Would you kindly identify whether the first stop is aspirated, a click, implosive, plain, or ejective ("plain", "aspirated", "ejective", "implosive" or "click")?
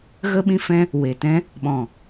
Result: implosive